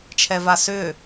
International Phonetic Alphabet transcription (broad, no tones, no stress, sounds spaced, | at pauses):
t͡ʃʰ ɛ v a s ʏː